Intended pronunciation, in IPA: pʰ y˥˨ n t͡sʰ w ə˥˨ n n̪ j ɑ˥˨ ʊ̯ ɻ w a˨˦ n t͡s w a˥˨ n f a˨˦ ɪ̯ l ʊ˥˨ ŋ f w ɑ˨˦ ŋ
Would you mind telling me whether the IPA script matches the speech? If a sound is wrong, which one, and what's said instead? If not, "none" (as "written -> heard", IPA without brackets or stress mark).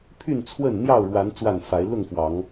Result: none